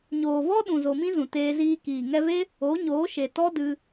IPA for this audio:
ɲoː˨vɔ˦ ɗũ˨zo˨mĩ˦ zũ˨teː˧ ziː˧kiː˨ ŋɛ˧ve˦ | o˨˦ɲoː˨˦ʃe˨tɔ˦ dɨ˧

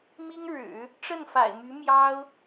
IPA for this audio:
mi˥ŋ ɻɻ̩˨˩˦ | ʈ͡ʂə˥˩nfa̰˨˩ɪ̯my˧˥ mjɑ˥ʊ̯

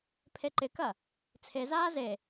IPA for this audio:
pʰeǃɪkɐ | t͡sʰezaː ze

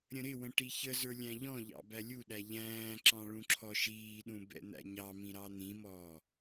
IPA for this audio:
ɾʲə̃ɾɪwə̃ ʈiçəzə˞ lʲæ̃ʎɔ̃ʎɑ̰ bælʲuɗæ ʎæ̃ːǁɑ̃ ɭũǁʰɔʃiːɗũ bɛ̰n̪æ̰ɲɑmĩ ɾɑn̪ĩmɔː

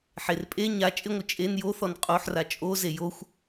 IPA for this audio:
ħerpʼe ɲa t͡ʃʼɪŋʷɪ t͡ʃʼen joθɔn qʼoħra t͡ʃʼo zejoxʷ

